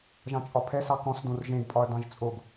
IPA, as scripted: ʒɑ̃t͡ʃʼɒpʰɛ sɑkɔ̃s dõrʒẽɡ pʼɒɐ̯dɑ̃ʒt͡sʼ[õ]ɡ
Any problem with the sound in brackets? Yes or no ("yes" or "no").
yes